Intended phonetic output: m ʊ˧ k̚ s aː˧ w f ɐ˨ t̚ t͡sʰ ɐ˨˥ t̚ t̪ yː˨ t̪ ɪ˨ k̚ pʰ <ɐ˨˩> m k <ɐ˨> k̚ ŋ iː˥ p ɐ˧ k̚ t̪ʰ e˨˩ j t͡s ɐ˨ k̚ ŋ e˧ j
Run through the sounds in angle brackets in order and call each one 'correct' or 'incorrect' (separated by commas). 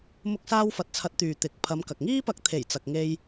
incorrect, correct